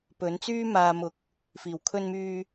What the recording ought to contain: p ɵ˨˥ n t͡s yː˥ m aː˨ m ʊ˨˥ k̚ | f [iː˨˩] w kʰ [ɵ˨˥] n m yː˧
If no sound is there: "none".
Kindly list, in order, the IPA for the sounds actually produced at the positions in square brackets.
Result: iː˨˩, ɵ˧

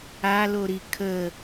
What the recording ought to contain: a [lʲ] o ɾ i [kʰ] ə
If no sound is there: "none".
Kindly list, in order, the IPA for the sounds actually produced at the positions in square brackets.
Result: l, kʰ

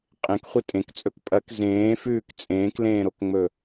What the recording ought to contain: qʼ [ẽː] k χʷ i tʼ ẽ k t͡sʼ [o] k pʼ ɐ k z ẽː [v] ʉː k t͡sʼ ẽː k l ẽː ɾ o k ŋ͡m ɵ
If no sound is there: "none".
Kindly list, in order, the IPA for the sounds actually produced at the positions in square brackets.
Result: ẽ, ɵ, f

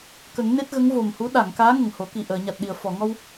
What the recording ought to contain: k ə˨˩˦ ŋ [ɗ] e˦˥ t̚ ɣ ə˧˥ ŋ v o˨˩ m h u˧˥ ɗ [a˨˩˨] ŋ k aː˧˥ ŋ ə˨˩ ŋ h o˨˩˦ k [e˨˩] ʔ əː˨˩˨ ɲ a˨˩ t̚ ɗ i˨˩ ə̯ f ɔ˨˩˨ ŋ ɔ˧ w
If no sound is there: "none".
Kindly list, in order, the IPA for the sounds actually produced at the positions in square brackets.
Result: n, a˨˩˨, i˨˩

